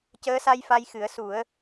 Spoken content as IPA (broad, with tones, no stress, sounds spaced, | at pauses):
c əː˧˥ s a˧ j f a˧ j x ɨ˨˩˦ ə̯ s u˨˩˦ ə̯